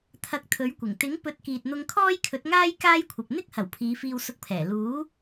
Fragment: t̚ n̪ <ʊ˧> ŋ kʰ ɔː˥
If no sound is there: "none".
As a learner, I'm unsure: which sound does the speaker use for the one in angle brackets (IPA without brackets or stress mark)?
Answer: ʊ˧